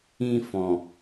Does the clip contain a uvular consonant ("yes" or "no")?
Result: no